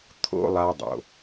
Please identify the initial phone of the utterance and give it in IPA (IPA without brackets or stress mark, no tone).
t̪ʰ